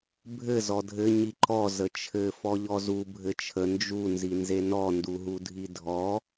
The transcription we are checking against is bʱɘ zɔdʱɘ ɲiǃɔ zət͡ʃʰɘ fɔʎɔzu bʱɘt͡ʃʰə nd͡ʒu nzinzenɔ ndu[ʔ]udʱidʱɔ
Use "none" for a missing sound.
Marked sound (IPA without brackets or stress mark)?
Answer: ɦ